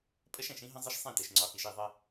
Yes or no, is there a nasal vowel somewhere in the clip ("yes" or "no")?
yes